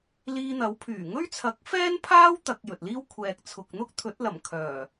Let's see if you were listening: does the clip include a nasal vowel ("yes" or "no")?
no